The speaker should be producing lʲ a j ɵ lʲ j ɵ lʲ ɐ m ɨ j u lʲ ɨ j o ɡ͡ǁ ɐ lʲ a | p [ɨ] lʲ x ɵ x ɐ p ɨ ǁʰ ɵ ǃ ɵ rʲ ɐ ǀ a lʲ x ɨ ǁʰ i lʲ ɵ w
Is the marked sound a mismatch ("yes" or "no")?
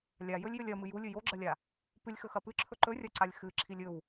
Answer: no